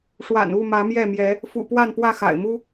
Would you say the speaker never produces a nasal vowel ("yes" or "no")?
yes